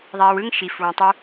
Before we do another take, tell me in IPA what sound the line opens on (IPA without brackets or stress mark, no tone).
ðˤ